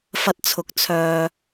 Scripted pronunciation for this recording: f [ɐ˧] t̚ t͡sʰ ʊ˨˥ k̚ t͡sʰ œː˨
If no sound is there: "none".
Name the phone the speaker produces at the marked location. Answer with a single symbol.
ɐ˧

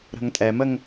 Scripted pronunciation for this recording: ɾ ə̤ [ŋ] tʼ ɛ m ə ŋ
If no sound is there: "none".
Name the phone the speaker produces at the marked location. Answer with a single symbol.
ŋ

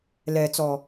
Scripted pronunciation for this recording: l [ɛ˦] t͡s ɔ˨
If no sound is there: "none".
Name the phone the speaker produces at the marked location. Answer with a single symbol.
ɛ˨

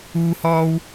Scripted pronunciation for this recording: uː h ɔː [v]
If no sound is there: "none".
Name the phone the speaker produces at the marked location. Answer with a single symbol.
w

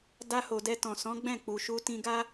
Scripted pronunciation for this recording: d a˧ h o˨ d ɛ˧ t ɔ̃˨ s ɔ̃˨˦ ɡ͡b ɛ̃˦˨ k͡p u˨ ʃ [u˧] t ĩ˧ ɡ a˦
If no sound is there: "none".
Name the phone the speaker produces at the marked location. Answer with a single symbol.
u˧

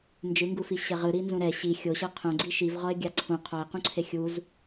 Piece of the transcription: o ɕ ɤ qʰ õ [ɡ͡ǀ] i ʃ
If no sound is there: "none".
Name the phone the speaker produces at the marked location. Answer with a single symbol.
ɡ͡ǀ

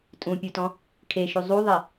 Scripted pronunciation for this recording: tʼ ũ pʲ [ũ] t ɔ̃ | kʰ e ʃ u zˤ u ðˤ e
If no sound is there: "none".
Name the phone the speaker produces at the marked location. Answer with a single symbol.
u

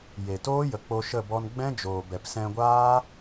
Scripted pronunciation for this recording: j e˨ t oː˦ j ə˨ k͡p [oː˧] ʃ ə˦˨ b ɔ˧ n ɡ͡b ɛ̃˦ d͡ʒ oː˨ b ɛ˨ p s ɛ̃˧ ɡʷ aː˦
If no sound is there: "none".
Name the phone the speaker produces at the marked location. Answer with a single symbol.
o˧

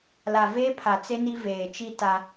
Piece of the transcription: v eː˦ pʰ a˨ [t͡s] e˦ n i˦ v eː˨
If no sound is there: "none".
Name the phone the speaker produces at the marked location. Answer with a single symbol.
t͡s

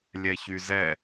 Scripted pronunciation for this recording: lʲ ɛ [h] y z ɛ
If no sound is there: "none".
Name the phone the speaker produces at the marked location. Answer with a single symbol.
ç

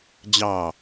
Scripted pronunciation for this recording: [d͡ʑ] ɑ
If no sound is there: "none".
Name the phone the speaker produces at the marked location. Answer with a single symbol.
d͡ʑ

